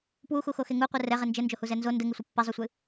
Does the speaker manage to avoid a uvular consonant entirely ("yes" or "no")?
no